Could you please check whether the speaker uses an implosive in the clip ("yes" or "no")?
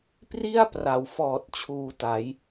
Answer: no